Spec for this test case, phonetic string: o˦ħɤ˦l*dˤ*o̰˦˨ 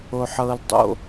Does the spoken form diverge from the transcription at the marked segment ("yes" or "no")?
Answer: no